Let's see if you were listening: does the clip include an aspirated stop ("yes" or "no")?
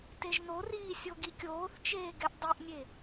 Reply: no